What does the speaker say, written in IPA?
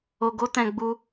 o˧ɡo˦tɛ̃˧ ɡ͡bu˦

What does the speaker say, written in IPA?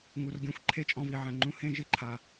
ŋu˨r ɡʲɔ̃˧xʷǃʰe˦t͡ʃʼɔ̃˧vi˨ ʕɛ̃˨ŋ͡ǃũ˧ hẽ˦ʒɪ˦ǃʰa˨

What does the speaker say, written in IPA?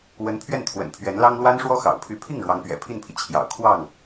wə˧˥npʰɥɛ˥˩nt̪ʰwə̰˨˩n pʰɥɛ˧˥nlɑ˥ŋ lwa˥nʂwɔ˥xɑ̰˨˩ʊ̯ pʰy˧˥pʰi˥˩ŋ ɻwɑ˧˥ŋpɥɛ̰˨˩pʰi˥˩npʰi˩ t͡ɕʰjɑ̰˨˩ʊ̯kʰwɑ˥˩ŋ

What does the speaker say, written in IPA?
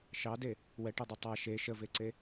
ʃɑde | wɛʈɛdˤi tˤa ʃe ʃəveǀe

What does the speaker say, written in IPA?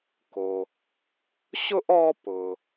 ko˩ | ɕʊ˥ʔ ɔ˥ pʊ˩

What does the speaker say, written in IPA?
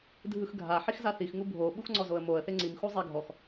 dʱɯxɡʱa ħixzaθix ŋubʱo ɓuxŋ͡ǀɔzoə̯moə̯ θeŋ͡ǀim xuzˤeɡʱɔx

